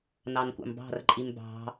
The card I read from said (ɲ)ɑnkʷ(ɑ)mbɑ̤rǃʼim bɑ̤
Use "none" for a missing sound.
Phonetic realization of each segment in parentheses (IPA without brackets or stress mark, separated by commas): n, ɑ̰